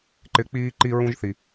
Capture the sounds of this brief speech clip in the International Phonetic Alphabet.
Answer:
ǃɪ˨˦k͡piː˦ǃi˦ ɹũ˦ʒθi˨

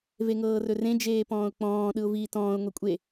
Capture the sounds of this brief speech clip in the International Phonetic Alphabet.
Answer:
veŋɤːrɵrẽ d͡ʒeːpɔ̃ːʊ̯k͡pɔ̃ː ɗɯʊ̯viːtɔ̃ːʊ̯ ŋʷekʷʼe

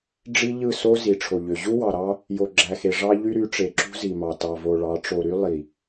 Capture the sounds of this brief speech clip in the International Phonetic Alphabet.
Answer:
ɖ͡ʐi˦ʎɯ˦˨so˦ zi˨ʈ͡ʂʰo˨ʎø˨ ʑu˦wɑ˨ɾɑ˦ | jo˨ɡ͡ǁæ˨xe˨ ʐɑ˦ʎy˦ɾy˨˦ ʈ͡ʂe˨ǁṳ˦zi˨mɑ˨ tɑ˨vo˨ɭɑ˨˦ ʈ͡ʂo˨ɾy˦ lˠi˨

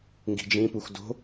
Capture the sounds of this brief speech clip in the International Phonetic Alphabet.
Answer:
ŋɡi̤d͡ʒĩpux do̤

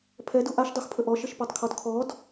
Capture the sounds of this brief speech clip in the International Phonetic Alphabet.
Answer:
pʰɛdu ʔaʃdˤuxpʰə ʔɔʃəʃpɔtˤkʰɔd kʰɔd

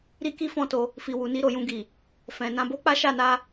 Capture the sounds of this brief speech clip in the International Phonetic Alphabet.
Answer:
ɾi˦ki˦ fɔ̃˦˨to˧ | fi˨ wu˨ni˧ ɾo˨jũ˧ɡi˨ | fɛ̃˨ nã˧bo˦k͡pa˦ ʃa˦˨na˧

